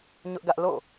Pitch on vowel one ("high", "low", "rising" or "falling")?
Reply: high